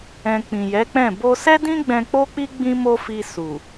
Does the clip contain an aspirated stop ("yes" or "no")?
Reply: no